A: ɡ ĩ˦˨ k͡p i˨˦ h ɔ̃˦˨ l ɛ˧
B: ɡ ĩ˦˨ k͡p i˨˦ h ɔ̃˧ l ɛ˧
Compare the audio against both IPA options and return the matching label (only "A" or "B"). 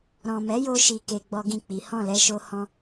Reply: A